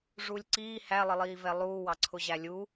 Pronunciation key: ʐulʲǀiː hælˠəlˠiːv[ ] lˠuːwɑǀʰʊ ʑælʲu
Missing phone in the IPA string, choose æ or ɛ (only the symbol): ɛ